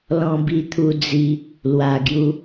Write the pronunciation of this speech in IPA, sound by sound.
l ɔ̃˧ b i˧ t̪ʰ u˧ d͡z i˧ | l w a˨˩ ɡ j u˧

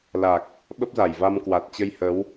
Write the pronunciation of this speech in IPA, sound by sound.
l a˨˩ k̚ | ɓ ə˦˥ p̚ z a˧˩ j v a˧ m k w a˨˩ t̚ t͡ɕ ə˧ j h ə˨˦ w

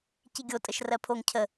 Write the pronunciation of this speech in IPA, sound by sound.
c i ɡʲ o tʼ ə ʃ r ɜ pʰ o ŋ cʰ ə

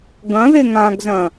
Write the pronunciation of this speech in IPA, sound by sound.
ɡ ɐ̃ ð e ŋ ã ɡ z ɐ̃

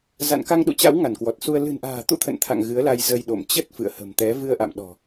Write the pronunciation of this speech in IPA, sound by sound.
z a̰˧˨ n k a˧ ŋ ɗ ṵ˧˨ t͡ɕ a̰˧˥ w ŋ a˧˩ n k w ɔ˨˩ t̚ s u˧ ə̯ l ɨ̤˨˩ n ʔ a̤ː˨˩ t̪ ṵ˧˥ t̪ʰ ə̰˧˨ n t̪ʰ a̰˧˨ ŋ ɣ ɨ˨˦ ə̯ l a˧ j z ə˧ j ɗ o̰˧˨ m t͡ɕ ə˦˥ t̚ f ɨ̰˧˨ ə̯ h ə̤˨˩ m t̪ ɛ˨˦ v ɨ˧ ə̯ ʔ a̰˧˨ m ɗ ɔ̤˨˩

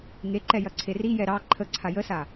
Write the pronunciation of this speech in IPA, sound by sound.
ŋ e ǃ ɛ j ɐ ǀʰ e r i j ɛ ɾ ɑ ǃʰ ə ǀʰ a j ə s a

